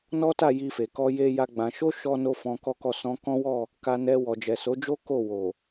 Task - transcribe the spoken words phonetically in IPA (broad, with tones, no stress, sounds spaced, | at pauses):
n ɔ˦ t a˦˨ j i˧ f e˨ k ɔ˧ j e˦ j a˦ ɡ͡b ã˧ ʃ o˦ ʃ ɔ˦ n o˦ f ɔ̃˧ k ɔ˦ k ɔ˦˨ s ɔ̃˧ k ɔ̃˦ w ɔ˦˨ | k a˧ n ɛ˧ w ɔ˨ d͡ʒ ɛ˨ s o˨˦ d͡ʒ o˦ k o˦˨ w o˨